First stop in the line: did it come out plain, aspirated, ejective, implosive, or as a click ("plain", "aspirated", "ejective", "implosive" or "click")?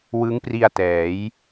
plain